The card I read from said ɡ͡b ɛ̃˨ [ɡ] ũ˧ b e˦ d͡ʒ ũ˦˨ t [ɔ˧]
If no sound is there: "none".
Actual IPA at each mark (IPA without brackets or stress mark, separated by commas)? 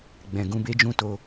ɡ, o˧